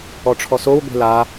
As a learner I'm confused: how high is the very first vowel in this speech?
mid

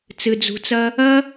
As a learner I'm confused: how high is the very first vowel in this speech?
high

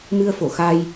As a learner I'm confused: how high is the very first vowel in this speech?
high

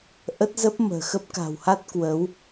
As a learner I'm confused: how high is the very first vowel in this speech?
mid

